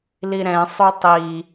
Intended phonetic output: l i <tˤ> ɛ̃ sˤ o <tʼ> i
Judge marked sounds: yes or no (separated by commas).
no, no